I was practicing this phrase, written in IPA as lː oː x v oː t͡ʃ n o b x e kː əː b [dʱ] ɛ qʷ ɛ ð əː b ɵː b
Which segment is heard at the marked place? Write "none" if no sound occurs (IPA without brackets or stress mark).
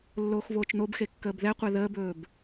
ð